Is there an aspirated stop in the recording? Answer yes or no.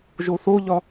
no